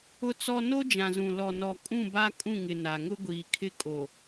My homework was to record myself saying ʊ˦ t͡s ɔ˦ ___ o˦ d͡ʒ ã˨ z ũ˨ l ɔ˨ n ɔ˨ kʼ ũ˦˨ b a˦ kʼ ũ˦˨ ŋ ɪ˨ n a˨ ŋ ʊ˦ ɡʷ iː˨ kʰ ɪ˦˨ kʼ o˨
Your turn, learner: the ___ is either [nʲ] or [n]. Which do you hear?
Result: n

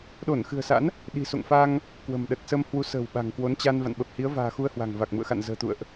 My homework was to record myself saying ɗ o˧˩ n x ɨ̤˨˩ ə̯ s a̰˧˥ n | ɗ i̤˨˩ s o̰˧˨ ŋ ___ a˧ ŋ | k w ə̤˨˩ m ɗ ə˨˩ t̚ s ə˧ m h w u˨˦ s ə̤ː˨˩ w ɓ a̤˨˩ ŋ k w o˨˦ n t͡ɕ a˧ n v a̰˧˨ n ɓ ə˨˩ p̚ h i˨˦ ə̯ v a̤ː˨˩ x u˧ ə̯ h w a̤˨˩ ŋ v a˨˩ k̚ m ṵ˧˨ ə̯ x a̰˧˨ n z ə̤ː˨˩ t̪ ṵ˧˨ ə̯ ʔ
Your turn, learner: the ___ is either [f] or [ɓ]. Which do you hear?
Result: f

